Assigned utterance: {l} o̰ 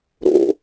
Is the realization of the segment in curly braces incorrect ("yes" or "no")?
yes